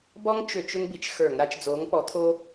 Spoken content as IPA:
b ɔ˥ ŋ t͡ʃ ʏ˧˩˧ t͡ʃ ʏ˥ ŋ b i˨˥ t͡ʃ x ə˞˧˩˧ ŋ ɾ a˨˥ t͡ʃ d͡z oː˨˥ ŋ p ɔ˨˥ t̪ʰ o˥

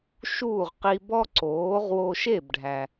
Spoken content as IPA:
ʃ uː˥˩ ʁ q i˧ b ɔ˥ ǀ oː˩˥ ʁ w o˧ ʃ e˥˩ b ɖʱ æ˩

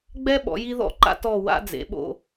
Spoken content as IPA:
ɡ͡b ɛ˦ ɓ ɔ̰˩˧ j i˦ ð ɔ̰˦˨ ǃ a̰˦ t ɔ˦˨ w a̰˦ d͡z ḛ˩˧ ɓ o̰˦˨

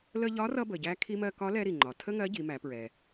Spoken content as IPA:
l ə˧ ʎ ɒ˧˥ r ʌ˧ b ə˩ ɟ æ˧ kʰ i˧ m ɜ˧ k ɒ˧˥ l ɛ˧ ɾ i˩ ŋ͡ǃ ɒ˩ tʰ ə˥ ŋ ɜ˧˥ ɟ i˩˧ m æ˩˧ p ɹ ɛ˩

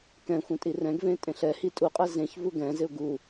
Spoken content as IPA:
k ɛ̃ xʷ ɛ̃ tʼ i r ɛ̃ ɡ v ẽ tʼ ẽ ɬ ɛ h i tʼ u qʼ ɛ z ẽ ç v u ɡ ɛ̃ z ɪ ʊ̯ ɡ u

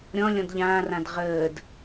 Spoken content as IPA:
ɾʲ ɔ̃ lʲ ɔ̃ d ʎ ãː r ã d ʁ əː d

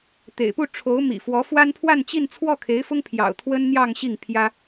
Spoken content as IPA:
t̪ ḛ˨˩ ɪ̯ p u˥˩ ʈ͡ʂʰ o˧˥ ʊ̯ m ḭ˨˩ f w ɔ˧˥ f w a˥ n pʰ w a˥˧ n t͡ɕ i˥˧ n t͡sʰ w ɔ˥˩ kʰ e˧˥ ɪ̯ f ʊ˥ ŋ pʰ j ɑ̰˨˩ ʊ̯ t̪ʰ w ə˥ n n̪ j ɑ˥˧ ŋ ɕ i˥˩ ŋ pʰ j ä˥

